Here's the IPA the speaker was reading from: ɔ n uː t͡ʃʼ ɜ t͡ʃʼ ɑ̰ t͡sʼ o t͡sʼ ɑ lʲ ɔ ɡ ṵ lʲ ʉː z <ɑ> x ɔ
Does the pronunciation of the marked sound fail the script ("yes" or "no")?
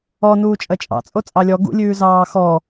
yes